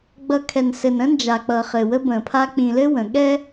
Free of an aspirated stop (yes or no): no